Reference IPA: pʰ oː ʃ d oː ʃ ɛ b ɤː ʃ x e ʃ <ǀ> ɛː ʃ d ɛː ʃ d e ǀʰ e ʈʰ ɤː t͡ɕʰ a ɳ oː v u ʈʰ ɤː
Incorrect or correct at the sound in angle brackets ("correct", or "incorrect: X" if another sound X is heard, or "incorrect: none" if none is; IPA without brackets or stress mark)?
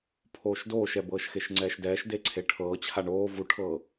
incorrect: ŋ͡ǀ